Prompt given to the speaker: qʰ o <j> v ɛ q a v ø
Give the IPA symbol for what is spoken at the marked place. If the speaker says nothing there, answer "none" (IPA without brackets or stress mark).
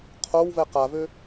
w